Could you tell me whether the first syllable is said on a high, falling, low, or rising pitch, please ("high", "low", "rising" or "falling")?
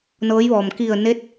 rising